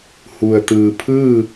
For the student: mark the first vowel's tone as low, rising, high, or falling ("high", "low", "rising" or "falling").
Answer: low